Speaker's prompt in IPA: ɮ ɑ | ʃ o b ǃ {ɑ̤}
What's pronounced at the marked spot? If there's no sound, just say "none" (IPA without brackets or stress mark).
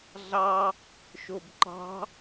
ɑ̤